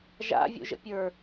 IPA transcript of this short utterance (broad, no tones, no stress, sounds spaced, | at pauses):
ʒ a̰ vʲ ṵ ʒ ə̰ pʲ ə˞